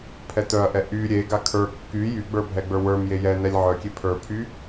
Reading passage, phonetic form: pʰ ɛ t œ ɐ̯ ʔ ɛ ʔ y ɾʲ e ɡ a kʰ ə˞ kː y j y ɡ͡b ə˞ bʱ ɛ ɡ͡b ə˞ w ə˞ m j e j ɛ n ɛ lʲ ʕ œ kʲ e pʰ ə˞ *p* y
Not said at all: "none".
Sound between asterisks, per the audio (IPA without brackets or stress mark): pʰ